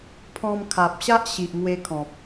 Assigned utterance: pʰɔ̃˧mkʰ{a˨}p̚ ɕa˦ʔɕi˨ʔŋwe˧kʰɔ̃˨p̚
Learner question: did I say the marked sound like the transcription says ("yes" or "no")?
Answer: yes